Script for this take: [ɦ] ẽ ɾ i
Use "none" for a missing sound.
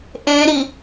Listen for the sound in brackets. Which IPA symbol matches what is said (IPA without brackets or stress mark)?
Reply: ʔ